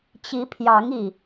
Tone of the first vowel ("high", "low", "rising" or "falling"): rising